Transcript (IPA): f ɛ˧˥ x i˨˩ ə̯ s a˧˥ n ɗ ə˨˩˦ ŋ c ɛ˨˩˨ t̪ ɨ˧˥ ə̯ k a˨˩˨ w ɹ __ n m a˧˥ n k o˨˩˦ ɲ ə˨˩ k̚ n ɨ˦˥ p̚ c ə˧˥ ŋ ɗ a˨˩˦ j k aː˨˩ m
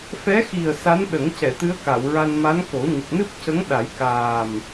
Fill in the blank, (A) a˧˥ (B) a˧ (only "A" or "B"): B